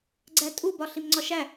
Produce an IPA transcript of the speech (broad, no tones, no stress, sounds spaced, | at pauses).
ɡ͡ǀ æ tʼ u b ɒ ɬ i m ŋ͡ǀ ɒ ʃ æ